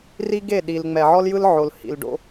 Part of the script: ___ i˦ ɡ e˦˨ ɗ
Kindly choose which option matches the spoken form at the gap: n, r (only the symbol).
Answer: r